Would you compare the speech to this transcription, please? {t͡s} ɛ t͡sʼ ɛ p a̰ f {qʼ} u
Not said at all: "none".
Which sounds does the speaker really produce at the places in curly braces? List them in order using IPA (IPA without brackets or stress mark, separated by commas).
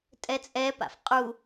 tʼ, qʼ